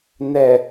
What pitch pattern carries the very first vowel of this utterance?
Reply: low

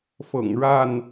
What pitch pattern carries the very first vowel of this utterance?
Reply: low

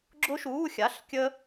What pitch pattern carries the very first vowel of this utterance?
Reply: high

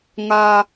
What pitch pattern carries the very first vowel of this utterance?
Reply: low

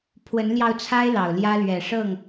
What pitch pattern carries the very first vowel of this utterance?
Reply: rising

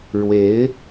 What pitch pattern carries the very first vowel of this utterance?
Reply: rising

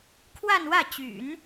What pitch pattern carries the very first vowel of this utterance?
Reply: falling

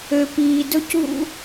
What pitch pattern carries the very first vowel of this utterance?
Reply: low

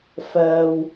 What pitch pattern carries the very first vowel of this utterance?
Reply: low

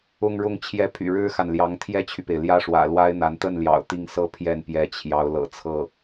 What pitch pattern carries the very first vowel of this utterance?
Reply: falling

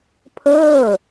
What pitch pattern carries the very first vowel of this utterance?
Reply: falling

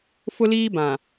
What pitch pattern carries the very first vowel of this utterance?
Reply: high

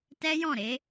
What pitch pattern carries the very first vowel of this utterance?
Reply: high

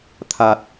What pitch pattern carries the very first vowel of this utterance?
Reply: low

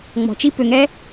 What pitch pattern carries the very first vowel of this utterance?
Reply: low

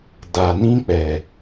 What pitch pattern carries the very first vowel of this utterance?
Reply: low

